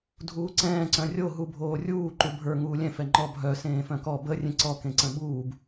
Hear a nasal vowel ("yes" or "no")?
yes